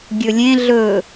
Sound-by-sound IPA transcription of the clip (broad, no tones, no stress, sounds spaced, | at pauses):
ɡʲ ɵ lʲ ẽ ɮ ɵ